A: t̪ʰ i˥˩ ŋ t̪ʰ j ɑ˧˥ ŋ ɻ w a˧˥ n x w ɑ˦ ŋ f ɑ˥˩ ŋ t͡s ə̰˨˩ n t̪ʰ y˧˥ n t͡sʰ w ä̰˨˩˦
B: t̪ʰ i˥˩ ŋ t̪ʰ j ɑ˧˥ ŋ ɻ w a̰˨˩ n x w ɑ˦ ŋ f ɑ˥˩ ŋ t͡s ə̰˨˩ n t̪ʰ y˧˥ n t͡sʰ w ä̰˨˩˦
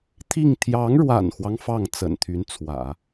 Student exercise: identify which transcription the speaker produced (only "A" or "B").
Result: B